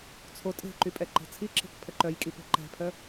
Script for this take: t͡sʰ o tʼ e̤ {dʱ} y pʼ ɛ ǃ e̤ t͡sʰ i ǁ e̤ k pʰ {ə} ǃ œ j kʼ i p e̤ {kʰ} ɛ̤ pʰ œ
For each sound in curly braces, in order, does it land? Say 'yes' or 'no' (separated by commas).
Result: no, yes, no